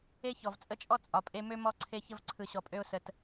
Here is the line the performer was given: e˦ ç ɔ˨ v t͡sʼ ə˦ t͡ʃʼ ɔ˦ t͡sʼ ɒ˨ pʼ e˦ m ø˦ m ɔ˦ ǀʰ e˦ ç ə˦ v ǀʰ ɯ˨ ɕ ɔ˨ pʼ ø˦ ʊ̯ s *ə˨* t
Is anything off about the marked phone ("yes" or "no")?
no